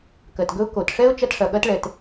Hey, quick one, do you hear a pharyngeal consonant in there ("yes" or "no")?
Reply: no